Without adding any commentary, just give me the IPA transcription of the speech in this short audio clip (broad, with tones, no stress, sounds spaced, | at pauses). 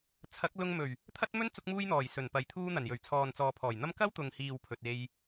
t͡sʰ ɐ˨˥ k̚ l ʊ˧ ŋ m ɵ˨˩ ɥ | t̪ʰ ɐ˥ t̚ m ɵ˥ n t͡s ʊ˧ k̚ m uː˧ j n̪ ɔː˨˩ j s ɵ˨˩ n p ɐ˨ j t̪ʰ uː˧ n̪ ɐ˨˩ n j ɵ˨˩ ɥ t͡sʰ ɔː˨ n t͡s ɔː˨ pʰ ɔː˨˩ j n̪ ɐ˥ m k ɐ˥ w t̪ ʊ˨ ŋ h iː˨ w pʰ ɵ˧ t̚ e˥ j